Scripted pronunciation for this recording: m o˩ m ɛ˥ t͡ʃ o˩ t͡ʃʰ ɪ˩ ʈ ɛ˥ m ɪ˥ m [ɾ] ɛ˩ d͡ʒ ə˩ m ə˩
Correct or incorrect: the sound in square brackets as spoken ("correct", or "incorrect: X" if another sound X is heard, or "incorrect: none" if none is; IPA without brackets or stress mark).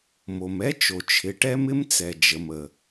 incorrect: t͡s